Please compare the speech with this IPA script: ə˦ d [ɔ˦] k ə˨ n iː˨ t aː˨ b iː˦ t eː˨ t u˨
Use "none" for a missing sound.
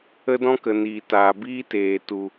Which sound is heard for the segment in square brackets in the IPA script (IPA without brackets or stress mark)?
ɔ̃˦